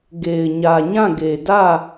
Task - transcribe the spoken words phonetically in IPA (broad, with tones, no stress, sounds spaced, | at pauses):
ɡ e˨ ɪ̯ ɲ ä˨ ɲ ã˦˨ ɡ e˨ d ä˦˨